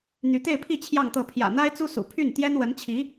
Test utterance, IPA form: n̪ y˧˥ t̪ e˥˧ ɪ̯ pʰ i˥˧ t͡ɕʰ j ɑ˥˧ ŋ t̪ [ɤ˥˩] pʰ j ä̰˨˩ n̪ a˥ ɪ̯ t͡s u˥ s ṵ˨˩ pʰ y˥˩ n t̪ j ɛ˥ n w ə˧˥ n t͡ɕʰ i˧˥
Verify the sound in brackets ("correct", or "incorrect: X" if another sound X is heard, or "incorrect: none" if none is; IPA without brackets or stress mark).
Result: correct